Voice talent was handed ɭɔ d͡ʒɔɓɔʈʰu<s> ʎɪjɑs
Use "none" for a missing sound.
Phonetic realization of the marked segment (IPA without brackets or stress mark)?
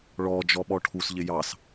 s